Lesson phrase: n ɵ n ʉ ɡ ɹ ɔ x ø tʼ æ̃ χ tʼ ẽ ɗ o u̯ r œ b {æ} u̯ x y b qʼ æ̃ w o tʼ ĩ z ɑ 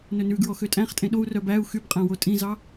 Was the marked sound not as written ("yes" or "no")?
no